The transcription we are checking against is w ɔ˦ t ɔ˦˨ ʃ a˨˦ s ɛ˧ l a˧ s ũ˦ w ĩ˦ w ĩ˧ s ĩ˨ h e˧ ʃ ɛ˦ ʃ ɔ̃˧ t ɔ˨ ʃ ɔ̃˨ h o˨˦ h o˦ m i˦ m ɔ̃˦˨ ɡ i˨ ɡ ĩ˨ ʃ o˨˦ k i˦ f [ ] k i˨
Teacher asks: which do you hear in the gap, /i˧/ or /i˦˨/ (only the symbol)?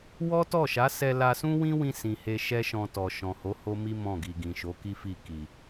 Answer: i˦˨